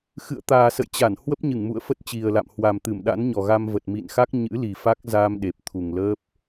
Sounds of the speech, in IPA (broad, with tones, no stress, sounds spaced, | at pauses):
x ɨ̰˧˨ ə̯ t̪ aː˨˩ s ə̰˧˨ j t͡ɕ a˧˩ n h w ə˦˥ p̚ ɲ ɨ˧˩ ŋ m ṵ˧˨ ə̯ f ə˦˥ t̚ t͡ɕ i˨˩ ə̯ l a̰˧˨ m h w a˨˩ m t̪ ɨ˧˩ m ɗ a̰˧˥ n ɲ ɔ˨˩ ɣ a˧ m v ə˨˩ t̚ m ḭ˧˨ n x a˦˥ k̚ ɲ ɨ̰˧˥ l i˨˩ f a˦˥ k̚ z a˧ m ɗ e˨˩ p̚ t̪ʰ u˨˩ ŋ l əː˦˥ p̚